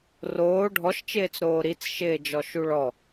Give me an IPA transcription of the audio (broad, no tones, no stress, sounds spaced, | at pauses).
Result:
r oː ɖʱ ɔ ʃ t͡ʃ ɪː t͡s ɾ oː ɾ i t͡s ʃ ɪː d͡ʒ ɔ ʃ u ɭ ɔ